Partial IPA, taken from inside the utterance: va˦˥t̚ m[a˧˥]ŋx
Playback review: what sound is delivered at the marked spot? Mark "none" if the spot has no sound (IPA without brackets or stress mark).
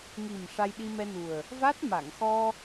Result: a˨˩˨